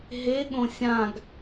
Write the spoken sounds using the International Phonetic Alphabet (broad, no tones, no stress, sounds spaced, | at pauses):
ɦ e ɠ õ sʲ ã ɡ